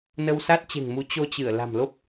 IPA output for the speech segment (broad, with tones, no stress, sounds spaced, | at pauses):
n ə˧ w s a˦˥ t̚ t͡ɕ e̤˨˩ ŋ m u˨˦ t͡ɕ o˧ t͡ɕ ɨ˧˩ ə̯ l a̤˨˩ m l o˦˥ p̚